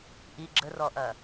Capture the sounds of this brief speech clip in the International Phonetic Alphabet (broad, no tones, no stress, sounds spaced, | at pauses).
ʔ i ɡ͡ǁ ə r ɔ ʔ ɐ